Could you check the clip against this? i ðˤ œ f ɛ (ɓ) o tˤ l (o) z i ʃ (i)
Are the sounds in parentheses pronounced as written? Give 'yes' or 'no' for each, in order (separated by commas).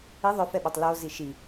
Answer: yes, yes, yes